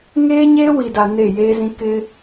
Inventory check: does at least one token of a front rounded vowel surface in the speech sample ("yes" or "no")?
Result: no